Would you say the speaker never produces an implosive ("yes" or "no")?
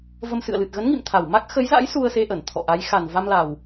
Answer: yes